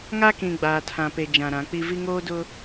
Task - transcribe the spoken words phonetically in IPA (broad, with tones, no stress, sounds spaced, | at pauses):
ŋ a˦ k ĩ˨ ɡ͡b aː˨ tʰ ã˨ p e˨ d͡ʒ ã˨ ɾ ã˨˦ k͡p i˦ v i˦ ŋ oː˦ d ʊ˦